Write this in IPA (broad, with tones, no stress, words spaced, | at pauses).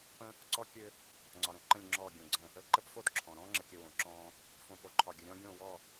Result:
pə̃˦ | ǀɔ˦ kʲø˦ | ŋ͡ǀɒ˨ɾə̃˨ ǃə̃˦˨lʲŋ͡ǁɔː˦˨ ɡʲõ˨ɡ͡ǀə̃˦˨ | ə˦˨ ǃə˦pfo˦d ǁʰɔ̃˨ ɾɔ̃ː˦ŋ͡ǁə˨kʲə˨ wõ˨ǁɔ̃ː˦ | fõ˨po˨ǃʰɒ˨ɡʲə˨ ɾʲɔ̃˦ ɡʲõ˦˨wɔ˦˨